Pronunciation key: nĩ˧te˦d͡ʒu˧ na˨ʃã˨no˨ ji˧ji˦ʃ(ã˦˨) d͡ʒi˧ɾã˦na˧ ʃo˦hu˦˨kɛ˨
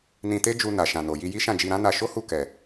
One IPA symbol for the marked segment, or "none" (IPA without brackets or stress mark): ã˦˨